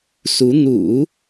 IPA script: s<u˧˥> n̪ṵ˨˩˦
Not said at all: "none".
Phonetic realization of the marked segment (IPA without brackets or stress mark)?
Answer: u˧˥